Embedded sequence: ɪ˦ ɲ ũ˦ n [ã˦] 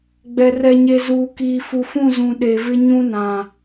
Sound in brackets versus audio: incorrect: ã˨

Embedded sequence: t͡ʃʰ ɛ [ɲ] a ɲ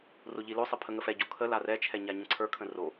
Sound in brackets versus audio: correct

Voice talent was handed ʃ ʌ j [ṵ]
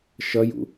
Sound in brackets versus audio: correct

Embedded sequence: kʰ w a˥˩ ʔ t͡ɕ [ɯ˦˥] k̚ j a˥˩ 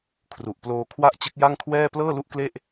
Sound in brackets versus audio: correct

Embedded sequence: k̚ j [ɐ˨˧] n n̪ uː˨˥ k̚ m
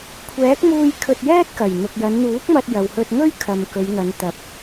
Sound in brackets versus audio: correct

